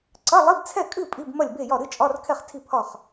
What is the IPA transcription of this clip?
ǀ ɐ˧˥˧ lˠ i˧˥˧ b t͡sʰ ɛ˥˨ kʼ ɨ˥˨ pʼ i˧˥˧ b m ɐ˥˨ lʲ b e˥˨ j ɒ˥˨ ɾ ɨ˧˥˧ t͡ʃʼ ɒ˧˥˧ r kʰ ɛ˥˨ χ tʰ i˥˨ pʰ ɒ˥˨ χ

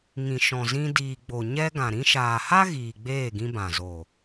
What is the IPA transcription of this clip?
ŋ ĩ˨ ʃ ɔ̃˨ z ĩ˧ d iː˨ ɡ͡b o˨ ɲ ɛ˧ ɡ ã˨ ɾ ĩ˧ ʃ aː˨ h a˦ ɣ iː˨ ɡ͡b eː˦˨ ɡ ĩ˧ b ã˨ z o˨

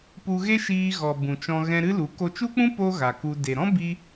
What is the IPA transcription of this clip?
p u˧ ɣ e˦ ʃ iː˧ ɣ ɔ˨ b ũ˨ t͡ʃ ɔ̃˧ ɣ ɛ̃˧ ɾ ɨ˦ l u˨˦ k o˧ t͡ʃ u˦ k͡p ũ˦ p o˦ ɣ a˨ k u˧ d e˨ ɾ ɔ̃˦ b i˦

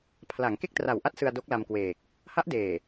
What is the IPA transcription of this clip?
pʰ l a˩˦ ŋ k e˥˩ k̚ t r a˨˩ w ʔ a˦˥ t̚ s ɯ˧ a̯ d o˦˥ k̚ l a˧ m k w eː˨˩ k̚ | h a˦˥ ʔ d eː˨˩

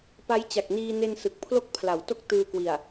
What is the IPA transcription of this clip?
p a˦˥ j t͡ɕ a˨˩ k̚ n iː˧ n e˧ n s ɯ˨˩ k̚ pʰ l o˥˩ k̚ pʰ l a˩˦ w t o˥˩ k̚ t ɯː˧ k w i˨˩ a̯

